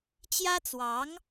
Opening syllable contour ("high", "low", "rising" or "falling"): high